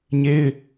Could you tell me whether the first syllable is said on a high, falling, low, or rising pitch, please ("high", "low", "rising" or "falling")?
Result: high